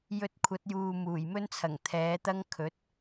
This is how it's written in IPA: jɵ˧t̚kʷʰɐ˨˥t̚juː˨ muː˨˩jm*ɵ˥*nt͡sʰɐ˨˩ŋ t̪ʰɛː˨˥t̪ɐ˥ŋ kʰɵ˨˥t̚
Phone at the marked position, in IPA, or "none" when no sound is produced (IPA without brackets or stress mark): ɵ˥